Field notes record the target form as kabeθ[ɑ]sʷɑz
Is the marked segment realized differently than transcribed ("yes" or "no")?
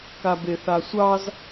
yes